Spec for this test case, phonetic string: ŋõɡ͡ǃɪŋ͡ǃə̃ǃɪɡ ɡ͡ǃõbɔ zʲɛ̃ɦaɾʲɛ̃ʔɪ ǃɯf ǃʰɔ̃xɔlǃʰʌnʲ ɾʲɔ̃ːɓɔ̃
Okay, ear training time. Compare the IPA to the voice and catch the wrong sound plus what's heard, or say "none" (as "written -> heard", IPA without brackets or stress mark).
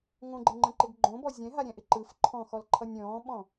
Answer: none